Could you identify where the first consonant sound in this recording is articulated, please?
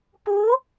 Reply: labial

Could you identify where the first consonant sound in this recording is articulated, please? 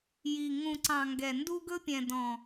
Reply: palatal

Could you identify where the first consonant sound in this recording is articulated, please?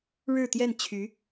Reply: retroflex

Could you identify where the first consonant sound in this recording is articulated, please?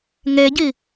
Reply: velar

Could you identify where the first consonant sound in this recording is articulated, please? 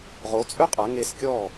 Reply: uvular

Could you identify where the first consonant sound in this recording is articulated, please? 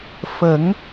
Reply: labial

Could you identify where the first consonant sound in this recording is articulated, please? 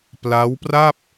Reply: labial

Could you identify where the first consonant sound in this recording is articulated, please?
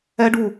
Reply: retroflex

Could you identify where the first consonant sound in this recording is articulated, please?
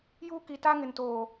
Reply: palatal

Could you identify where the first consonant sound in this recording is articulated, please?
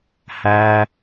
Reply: glottal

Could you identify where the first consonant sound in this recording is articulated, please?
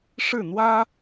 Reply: retroflex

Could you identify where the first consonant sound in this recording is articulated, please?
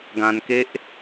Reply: velar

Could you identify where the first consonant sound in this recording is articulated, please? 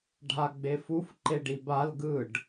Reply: retroflex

